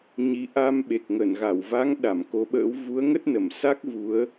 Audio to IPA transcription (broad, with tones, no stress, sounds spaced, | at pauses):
ɲ i˨˦ ʔ a˧ m ɓ e˨˩ k̚ ŋ ə˧˩ n ɣ a˧˩ w v a˨˦ ŋ ɗ a˧˩ m k o˨˦ ɓ ə̰ː˧˥ w v u˨˦ ə̯ ŋ ə˦˥ t̚ n ə˧˩ m s a˦˥ k̚ v u˨˦ ə̯